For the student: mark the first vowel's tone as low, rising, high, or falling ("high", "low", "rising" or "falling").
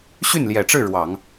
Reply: falling